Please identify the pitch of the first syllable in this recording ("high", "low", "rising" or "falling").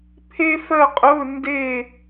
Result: high